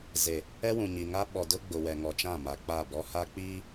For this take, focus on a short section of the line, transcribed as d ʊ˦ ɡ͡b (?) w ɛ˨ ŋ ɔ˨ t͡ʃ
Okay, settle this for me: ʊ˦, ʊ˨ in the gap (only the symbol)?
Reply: ʊ˨